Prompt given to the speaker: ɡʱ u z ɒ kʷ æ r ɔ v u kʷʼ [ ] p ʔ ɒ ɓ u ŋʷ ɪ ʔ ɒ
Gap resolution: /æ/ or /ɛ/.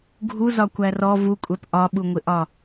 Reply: ɛ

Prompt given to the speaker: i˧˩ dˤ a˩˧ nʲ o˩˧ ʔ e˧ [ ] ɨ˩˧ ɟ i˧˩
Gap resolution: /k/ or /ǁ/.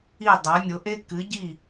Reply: k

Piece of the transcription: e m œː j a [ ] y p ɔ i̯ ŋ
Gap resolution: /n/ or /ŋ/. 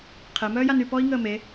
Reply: n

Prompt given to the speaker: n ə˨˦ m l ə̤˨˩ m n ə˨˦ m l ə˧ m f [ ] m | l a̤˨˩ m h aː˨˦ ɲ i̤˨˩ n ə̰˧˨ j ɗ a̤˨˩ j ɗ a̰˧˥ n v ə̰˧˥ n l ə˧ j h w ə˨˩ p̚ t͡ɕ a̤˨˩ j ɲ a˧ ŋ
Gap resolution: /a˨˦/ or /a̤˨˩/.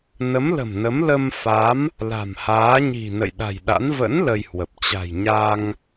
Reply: a˨˦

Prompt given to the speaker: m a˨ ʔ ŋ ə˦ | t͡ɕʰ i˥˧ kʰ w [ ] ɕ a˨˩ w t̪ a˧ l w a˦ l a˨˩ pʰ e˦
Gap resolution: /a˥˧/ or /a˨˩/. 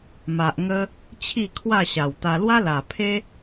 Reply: a˥˧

